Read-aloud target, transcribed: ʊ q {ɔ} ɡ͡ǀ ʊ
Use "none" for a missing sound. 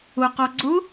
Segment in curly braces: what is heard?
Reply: ɔ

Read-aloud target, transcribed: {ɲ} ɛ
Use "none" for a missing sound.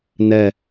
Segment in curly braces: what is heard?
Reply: n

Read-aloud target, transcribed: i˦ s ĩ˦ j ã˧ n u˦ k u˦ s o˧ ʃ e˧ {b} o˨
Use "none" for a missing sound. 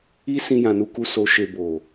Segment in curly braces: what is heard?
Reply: b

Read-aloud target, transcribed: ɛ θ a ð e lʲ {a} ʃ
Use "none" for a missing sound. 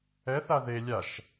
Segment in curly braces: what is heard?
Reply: a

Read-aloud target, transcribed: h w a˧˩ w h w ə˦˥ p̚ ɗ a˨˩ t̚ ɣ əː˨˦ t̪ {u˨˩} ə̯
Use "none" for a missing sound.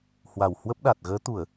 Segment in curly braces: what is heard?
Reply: u˧˩˨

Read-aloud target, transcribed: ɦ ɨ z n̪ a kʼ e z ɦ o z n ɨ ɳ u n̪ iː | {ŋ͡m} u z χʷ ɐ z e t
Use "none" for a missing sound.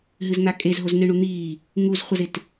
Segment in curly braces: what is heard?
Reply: ŋ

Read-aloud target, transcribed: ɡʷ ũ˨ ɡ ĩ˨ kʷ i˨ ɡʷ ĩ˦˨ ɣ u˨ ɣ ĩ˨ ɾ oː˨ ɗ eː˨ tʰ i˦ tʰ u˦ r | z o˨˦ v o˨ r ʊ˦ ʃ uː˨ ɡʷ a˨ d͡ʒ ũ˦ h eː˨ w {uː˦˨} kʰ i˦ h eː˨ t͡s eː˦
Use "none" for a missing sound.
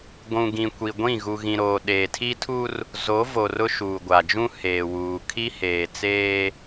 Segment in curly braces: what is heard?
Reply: uː˨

